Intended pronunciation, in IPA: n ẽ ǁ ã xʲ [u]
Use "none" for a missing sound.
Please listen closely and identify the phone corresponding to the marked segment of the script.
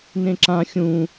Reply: ũ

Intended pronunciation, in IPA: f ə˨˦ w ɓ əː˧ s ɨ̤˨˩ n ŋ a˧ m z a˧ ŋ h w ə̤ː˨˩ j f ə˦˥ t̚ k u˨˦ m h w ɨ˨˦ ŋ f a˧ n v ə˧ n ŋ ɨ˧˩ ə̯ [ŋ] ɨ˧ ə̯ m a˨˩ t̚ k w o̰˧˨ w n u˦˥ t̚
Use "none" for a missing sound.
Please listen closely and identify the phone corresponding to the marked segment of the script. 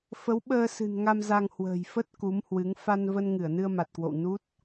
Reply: n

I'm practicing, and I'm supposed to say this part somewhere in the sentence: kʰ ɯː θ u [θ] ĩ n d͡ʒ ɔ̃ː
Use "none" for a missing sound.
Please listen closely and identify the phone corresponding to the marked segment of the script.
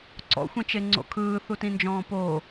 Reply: t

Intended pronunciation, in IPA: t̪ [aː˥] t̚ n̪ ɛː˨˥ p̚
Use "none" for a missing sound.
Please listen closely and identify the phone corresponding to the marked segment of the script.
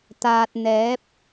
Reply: aː˨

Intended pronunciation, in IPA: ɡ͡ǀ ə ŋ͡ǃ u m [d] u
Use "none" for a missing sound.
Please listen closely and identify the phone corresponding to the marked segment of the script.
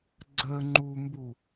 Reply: b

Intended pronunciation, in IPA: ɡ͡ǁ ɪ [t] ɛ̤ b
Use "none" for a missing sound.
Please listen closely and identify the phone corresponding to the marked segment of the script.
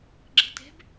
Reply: t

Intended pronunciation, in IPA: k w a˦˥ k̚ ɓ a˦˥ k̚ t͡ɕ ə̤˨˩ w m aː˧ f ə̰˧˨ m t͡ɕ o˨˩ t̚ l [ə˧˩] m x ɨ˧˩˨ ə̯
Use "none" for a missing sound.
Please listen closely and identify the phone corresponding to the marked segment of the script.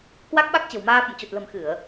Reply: ə̤˨˩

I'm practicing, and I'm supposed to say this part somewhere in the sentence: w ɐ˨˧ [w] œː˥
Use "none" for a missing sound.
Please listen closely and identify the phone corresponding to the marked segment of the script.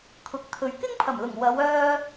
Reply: w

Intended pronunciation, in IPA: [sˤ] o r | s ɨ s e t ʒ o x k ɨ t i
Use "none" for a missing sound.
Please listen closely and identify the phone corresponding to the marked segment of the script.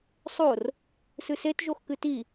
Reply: sˤ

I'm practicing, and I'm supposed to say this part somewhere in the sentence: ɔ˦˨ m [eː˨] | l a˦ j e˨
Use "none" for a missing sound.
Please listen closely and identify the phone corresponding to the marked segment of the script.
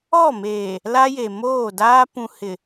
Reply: eː˨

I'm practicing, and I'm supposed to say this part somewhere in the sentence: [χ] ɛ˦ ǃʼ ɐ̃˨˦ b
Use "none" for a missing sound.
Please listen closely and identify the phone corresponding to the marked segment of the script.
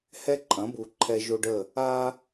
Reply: h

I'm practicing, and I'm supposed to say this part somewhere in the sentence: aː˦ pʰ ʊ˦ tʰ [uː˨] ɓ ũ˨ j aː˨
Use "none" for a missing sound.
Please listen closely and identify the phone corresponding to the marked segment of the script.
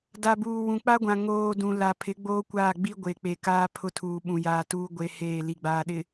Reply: uː˨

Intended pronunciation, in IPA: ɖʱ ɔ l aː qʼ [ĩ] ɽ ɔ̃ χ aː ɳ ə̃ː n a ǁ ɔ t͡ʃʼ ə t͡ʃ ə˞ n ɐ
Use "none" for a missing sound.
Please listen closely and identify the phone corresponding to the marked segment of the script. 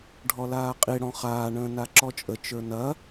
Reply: i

